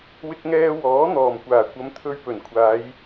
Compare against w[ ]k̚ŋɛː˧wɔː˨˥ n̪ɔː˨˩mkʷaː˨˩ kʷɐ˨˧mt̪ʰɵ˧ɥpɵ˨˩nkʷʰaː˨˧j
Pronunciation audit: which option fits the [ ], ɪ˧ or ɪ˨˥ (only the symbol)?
ɪ˧